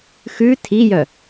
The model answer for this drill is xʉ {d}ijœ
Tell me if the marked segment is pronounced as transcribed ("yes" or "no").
no